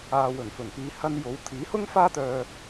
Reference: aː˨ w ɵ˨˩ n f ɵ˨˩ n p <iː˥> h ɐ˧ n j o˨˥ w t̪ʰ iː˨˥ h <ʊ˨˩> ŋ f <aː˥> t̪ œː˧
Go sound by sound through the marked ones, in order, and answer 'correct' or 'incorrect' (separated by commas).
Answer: incorrect, incorrect, correct